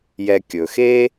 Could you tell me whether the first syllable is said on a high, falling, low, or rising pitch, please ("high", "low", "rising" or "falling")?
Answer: low